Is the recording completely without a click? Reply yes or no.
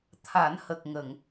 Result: yes